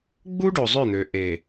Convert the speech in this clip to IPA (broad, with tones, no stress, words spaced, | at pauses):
ɡ͡bu˦ɖo˨ zˤø˦˨n̪ø˨ ʔe˨